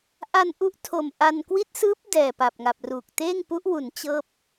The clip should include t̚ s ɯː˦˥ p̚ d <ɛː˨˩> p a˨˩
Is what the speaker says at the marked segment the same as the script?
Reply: yes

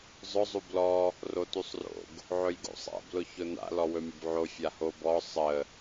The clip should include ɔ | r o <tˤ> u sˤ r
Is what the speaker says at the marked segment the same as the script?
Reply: no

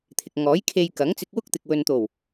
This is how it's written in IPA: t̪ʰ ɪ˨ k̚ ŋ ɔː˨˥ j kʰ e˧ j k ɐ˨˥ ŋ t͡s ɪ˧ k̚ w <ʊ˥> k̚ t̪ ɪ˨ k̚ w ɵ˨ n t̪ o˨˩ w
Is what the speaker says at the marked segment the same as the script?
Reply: yes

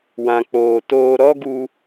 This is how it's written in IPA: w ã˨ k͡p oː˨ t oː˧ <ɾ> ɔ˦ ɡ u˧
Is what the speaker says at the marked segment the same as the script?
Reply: yes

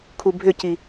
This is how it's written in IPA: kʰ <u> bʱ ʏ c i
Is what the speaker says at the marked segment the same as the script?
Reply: yes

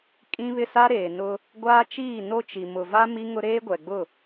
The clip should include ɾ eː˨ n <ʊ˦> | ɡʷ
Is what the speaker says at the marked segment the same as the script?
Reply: yes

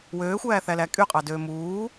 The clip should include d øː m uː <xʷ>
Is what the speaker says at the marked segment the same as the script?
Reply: no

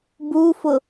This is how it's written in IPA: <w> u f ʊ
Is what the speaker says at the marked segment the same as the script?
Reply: no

